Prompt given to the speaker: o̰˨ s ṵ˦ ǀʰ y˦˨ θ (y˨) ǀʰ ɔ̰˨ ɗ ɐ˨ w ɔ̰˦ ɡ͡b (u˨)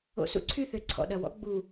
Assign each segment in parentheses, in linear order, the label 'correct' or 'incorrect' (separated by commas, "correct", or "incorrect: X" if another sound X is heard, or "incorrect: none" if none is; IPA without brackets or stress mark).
incorrect: ø˨, correct